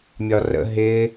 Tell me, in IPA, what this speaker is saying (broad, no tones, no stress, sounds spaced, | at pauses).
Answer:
mʲ ɒ r ə̰ ɦ ɪ